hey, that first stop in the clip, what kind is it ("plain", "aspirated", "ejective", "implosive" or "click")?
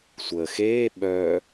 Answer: implosive